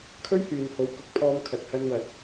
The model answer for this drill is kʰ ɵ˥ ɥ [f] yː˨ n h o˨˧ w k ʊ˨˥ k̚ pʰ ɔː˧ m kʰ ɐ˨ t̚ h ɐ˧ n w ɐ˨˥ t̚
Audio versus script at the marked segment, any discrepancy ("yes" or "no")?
yes